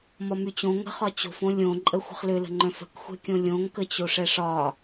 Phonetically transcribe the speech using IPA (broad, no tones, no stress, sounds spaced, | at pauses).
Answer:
m ɒ m y t͡ɕ õ ŋ ə̤ χ ɒ t͡ɕ o̤ f õ lʲ õ ǃʼ ə xʷ ə̤ χ l ʏ l ə̤ ŋ͡ǃ œ̃ f ə̤ k xʷ ɛ̤ kʲ õ lʲ õ ŋ k ə t͡ɕ o ʂ ɛ ʂ ɒ